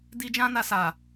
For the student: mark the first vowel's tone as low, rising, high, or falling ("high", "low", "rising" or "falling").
high